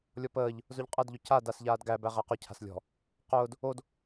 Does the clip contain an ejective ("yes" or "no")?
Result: yes